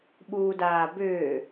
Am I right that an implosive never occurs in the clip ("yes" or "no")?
no